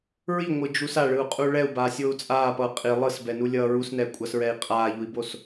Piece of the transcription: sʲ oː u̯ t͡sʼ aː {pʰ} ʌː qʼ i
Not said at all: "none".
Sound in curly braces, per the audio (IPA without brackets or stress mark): p